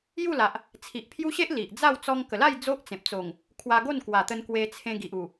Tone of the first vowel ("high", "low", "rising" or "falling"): falling